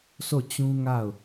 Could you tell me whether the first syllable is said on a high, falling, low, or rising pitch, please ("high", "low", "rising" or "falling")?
falling